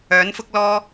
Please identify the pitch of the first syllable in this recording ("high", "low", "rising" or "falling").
rising